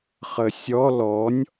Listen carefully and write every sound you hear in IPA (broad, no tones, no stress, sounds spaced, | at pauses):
χ ə sʲ ɔ l ɔ nʲ